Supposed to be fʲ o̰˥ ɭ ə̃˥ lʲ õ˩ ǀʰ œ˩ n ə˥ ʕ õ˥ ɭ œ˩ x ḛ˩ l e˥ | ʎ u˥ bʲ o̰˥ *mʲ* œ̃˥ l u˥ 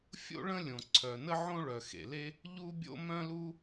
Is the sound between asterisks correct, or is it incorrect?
incorrect